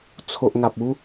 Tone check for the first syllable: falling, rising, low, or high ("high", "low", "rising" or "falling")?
low